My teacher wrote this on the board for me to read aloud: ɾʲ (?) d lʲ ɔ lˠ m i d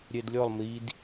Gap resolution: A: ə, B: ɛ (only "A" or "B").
B